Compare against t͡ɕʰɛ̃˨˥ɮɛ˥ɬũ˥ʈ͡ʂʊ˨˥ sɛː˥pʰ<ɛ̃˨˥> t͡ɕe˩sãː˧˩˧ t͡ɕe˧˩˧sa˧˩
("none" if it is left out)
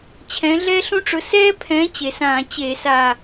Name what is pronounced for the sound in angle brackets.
ɛ̃˨˥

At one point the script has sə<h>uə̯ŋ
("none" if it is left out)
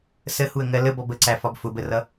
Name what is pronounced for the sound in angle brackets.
h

